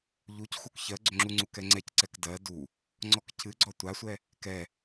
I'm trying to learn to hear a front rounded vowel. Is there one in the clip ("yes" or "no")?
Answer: yes